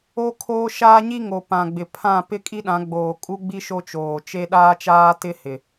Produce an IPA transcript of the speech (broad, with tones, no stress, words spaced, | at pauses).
o˦kʰoː˦ ʃaː˦ɲi˦ŋo˨ pã˨ɡ͡bɪ˨ pʰã˦˨ pɪ˦kʼi˦ɗã˨˦ɡ͡boː˨ kʼu˦ɡ͡bi˦ ʃo˦t͡ʃoː˨t͡ʃe˦ ɗaː˦t͡ʃaː˦tɪ˦ hɪ˨